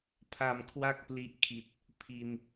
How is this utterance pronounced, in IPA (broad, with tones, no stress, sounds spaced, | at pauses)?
pʰ a˨˩ m kʰ w a˥˩ k̚ p l i˦˥ ʔ kʰ i˨˩ t̚ | pʰ i˧ n